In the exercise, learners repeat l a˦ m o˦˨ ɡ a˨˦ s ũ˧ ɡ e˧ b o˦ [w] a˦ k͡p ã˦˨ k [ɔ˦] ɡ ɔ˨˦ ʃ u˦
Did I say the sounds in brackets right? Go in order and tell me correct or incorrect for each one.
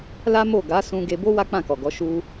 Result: correct, incorrect: ɔ˨

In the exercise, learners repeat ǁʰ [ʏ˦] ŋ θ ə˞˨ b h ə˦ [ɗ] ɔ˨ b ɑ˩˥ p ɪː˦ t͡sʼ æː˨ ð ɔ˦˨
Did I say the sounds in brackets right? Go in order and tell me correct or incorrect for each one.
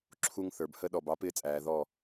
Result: incorrect: u˦, correct

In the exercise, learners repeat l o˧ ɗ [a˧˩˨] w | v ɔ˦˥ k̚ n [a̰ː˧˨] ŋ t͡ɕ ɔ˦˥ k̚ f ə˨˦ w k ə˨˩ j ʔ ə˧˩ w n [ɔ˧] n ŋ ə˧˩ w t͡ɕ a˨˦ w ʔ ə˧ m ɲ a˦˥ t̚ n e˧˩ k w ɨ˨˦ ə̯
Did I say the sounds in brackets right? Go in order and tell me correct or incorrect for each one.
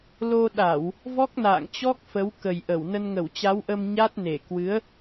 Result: correct, correct, incorrect: ə˧

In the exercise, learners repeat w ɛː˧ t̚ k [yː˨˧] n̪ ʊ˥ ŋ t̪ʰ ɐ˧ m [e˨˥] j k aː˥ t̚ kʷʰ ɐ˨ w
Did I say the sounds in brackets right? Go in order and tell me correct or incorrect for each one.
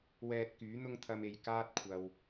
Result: incorrect: yː˨˥, incorrect: e˨

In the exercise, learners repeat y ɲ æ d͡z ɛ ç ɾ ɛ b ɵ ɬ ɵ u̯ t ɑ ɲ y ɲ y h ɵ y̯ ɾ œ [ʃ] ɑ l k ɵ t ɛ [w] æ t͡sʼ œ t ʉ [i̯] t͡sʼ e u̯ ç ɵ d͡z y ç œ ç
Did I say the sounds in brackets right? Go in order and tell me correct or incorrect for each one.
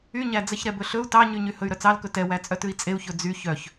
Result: incorrect: t͡s, correct, correct

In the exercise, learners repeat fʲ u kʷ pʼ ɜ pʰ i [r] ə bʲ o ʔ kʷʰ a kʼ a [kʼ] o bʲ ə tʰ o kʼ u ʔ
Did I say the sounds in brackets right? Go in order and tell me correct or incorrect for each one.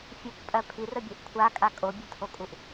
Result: correct, correct

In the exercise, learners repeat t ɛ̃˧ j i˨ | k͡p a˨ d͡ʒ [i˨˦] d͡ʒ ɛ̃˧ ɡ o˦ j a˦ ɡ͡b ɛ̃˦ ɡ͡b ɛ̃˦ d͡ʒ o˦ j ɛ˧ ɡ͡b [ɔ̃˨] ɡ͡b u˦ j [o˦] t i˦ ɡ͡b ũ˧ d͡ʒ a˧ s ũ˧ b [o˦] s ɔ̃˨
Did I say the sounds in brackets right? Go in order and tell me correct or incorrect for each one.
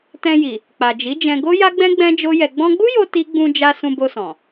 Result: correct, incorrect: ɔ̃˧, incorrect: o˧, incorrect: o˧

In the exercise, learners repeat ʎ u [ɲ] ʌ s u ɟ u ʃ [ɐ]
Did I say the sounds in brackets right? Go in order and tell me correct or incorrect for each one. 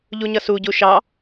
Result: correct, incorrect: ɑ

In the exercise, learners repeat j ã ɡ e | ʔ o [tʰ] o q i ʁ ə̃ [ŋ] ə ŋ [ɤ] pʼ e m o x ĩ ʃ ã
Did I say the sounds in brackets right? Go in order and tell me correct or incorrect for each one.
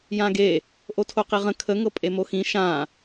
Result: correct, incorrect: kʰ, correct

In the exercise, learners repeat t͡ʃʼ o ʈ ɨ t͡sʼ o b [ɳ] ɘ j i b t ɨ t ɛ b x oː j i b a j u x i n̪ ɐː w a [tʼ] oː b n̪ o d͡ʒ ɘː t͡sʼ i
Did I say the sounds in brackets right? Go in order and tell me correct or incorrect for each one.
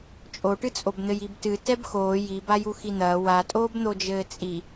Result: incorrect: n̪, correct

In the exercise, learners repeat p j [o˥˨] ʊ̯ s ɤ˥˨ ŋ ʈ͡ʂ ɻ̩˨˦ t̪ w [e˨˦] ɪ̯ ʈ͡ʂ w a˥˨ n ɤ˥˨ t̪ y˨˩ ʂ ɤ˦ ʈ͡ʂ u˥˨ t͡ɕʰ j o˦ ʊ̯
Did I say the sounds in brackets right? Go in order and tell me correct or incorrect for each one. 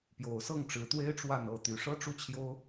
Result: incorrect: o˨˩, incorrect: e˦

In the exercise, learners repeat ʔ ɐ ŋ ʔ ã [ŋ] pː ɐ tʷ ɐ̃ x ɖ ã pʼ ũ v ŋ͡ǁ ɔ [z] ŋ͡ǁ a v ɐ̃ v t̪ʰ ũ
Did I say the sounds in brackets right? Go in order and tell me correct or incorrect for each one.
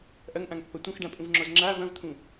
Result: correct, correct

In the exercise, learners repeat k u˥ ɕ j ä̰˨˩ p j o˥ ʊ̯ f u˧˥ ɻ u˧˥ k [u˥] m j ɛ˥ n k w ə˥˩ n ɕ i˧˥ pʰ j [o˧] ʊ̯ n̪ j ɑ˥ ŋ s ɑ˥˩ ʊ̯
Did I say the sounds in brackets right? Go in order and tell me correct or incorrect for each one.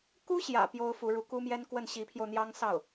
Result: correct, correct

